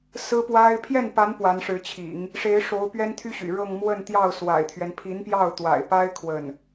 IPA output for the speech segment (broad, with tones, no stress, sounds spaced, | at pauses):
s ɹ̩˥ p w a˥ ɪ̯ pʰ j ɛ˥˩ n p a˧˥ n p w a˧˥ n ʂ ɻ̩˧˥ t͡ɕʰ ḭ˨˩˦ ŋ | ʂ e˧˥ ɪ̯ ʂ o˧˥ ʊ̯ p ɥ ɛ˥ n t̪ʰ y˥ ɕ y̰˨˩ ɻ ɤ˥˧ ŋ m w ə˥˧ n t̪ j ɑ˥˩ ʊ̯ s w a̰˨˩ ɪ̯ t̪ʰ ɥ ɛ˦ n pʰ i˧˥ n p j ɑ˥˩ ʊ̯ t̪ w a̰˨˩ ɪ̯ p a˥ ɪ̯ kʰ w ə˥˩ n